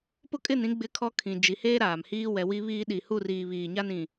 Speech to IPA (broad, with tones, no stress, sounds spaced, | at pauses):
p ʊ˦ kʼ ɪ˦˨ n ĩ˦ ɡ͡b ɪ˦ kʰ ɔ˦ kʰ ĩ˨ d͡ʒ i˨ h eː˦ ɾ aː˨ m h iː˦ w ɛ˨ w i˦ β iː˦ ɗ i˨ h u˦˨ r iː˨ β iː˨ ɲ a˦ n ĩ˨